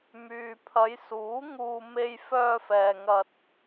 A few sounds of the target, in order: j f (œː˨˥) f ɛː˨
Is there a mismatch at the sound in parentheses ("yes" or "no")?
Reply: yes